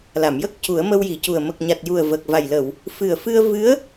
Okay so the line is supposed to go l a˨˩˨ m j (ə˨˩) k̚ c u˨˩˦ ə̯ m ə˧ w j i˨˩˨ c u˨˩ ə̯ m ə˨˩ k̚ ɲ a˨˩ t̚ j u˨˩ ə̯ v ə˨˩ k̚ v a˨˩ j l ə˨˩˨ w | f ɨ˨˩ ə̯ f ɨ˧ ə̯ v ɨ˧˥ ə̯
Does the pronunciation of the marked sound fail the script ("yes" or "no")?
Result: yes